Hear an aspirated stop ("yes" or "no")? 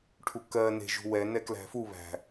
yes